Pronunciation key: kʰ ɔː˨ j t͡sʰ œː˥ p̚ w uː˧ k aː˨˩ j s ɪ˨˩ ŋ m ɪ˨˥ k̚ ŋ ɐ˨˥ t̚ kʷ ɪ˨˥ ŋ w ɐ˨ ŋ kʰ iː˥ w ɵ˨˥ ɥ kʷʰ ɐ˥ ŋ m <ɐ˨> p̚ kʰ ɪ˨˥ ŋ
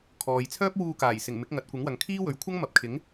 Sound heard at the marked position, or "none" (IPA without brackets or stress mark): ɐ˨